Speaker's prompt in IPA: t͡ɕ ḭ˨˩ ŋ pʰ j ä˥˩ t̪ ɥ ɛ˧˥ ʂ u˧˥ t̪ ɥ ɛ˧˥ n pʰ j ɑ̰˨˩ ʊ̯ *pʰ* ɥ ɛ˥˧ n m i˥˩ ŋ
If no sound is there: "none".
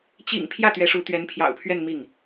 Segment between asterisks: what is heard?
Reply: pʰ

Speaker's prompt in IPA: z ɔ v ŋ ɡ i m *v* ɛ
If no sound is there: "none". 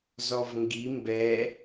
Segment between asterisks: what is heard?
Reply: b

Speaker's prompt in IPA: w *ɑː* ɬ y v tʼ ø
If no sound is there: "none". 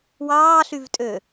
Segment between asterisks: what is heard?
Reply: ɑː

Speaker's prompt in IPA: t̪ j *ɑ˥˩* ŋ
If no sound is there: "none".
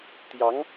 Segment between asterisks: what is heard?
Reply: ɑ˧˥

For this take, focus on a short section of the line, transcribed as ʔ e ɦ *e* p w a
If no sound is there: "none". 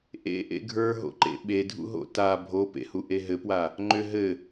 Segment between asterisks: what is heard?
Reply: ɘ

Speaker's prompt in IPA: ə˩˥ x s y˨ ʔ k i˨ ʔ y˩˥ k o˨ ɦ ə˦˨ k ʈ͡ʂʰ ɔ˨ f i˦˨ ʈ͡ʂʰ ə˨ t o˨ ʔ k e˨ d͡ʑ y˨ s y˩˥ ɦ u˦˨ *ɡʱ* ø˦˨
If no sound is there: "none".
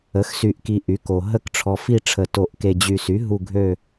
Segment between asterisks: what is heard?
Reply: ɡʱ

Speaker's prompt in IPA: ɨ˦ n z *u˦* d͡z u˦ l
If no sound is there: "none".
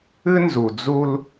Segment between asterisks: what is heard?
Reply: u˨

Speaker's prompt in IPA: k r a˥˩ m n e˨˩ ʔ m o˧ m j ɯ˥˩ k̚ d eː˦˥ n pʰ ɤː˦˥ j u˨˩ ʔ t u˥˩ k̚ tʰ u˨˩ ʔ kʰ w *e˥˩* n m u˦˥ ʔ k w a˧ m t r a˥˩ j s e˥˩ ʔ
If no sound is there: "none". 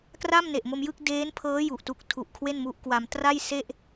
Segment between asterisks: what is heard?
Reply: e˥˩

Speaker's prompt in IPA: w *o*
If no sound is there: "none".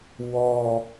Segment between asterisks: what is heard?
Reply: ɔ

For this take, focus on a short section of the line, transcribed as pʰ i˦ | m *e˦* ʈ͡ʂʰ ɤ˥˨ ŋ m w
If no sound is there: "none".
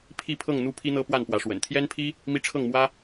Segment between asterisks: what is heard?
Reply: i˦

